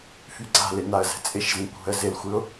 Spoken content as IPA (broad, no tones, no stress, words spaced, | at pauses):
fyɡ͡ǀa̤lɪ naə̯zɛ̤t͡sʼɪʃzĩ kʷʰɛ̤ə̯zɪlxʷɪʊ̯